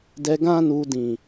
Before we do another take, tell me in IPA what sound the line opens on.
d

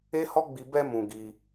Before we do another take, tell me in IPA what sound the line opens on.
e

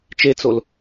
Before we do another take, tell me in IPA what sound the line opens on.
t͡ʃ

